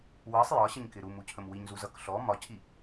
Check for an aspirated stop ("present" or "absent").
present